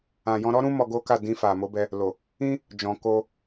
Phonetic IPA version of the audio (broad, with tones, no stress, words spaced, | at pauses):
ã˨ jɔ̃˧ɾɔ˦ɾũ˦ mɔ˧ɡo˦ka˦˨ dĩ˧fa˨mo˨˦bɛ˧ | lo˨ | ĩ˦ | d͡ʒɔ̃˨ko˧